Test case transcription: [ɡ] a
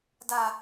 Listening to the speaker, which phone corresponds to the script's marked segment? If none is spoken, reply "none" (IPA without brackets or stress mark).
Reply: d